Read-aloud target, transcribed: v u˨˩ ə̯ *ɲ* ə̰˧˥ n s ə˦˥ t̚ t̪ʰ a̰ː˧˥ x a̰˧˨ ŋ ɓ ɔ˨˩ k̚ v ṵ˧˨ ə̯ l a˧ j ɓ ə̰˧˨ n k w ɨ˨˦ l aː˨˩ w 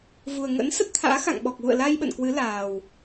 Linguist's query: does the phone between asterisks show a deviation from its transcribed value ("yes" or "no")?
yes